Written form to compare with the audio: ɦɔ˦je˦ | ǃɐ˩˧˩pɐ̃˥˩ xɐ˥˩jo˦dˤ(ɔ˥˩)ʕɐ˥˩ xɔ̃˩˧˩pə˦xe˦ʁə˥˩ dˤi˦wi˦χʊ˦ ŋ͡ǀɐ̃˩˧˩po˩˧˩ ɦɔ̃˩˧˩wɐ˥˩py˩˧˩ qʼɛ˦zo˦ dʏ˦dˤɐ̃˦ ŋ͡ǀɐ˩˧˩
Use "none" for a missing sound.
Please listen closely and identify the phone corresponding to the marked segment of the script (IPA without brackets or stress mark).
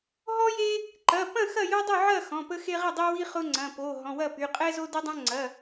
ʊ˥˩